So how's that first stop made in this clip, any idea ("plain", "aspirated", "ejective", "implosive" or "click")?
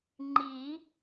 click